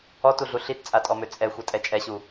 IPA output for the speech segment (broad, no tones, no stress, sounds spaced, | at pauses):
ɔ t u ɮ u ɬ i t t͡sʼ a tʼ ɔ m ø t͡sʼ ɛ xʷ ɛ tʼ ɛ t͡ʃʼ ɛ ɕ u